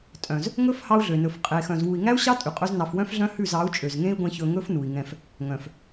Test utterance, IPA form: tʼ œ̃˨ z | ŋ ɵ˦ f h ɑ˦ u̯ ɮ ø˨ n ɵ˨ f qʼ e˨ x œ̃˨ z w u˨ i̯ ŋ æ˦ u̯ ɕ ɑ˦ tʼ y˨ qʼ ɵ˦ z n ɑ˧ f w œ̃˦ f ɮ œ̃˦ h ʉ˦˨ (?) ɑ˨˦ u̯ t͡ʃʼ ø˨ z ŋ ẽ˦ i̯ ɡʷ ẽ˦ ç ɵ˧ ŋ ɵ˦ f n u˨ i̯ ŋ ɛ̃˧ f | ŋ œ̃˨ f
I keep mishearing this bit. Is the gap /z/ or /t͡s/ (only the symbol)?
z